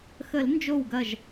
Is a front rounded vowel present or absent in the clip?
absent